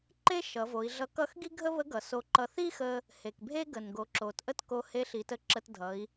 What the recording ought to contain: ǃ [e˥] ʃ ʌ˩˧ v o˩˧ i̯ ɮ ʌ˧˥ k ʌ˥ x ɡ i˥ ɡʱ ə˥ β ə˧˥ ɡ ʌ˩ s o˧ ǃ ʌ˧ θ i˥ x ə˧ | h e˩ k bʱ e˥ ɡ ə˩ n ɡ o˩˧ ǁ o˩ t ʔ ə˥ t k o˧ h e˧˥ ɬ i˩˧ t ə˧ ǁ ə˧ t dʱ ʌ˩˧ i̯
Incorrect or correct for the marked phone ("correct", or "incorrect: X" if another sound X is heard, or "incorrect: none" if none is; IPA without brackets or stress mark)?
correct